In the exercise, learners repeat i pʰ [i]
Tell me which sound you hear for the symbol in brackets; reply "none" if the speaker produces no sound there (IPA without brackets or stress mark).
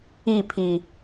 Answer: i